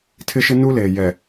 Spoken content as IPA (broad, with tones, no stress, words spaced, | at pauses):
tʰɪ˦ʃɪ˦ nu˦leː˨ jɛ˨